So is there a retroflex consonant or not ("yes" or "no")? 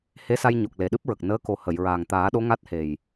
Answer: no